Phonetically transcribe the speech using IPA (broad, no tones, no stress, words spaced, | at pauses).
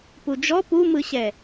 pud͡ʒɔ pumɯɕɛ